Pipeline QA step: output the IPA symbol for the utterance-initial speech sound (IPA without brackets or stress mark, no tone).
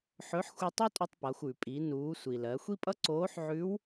ħ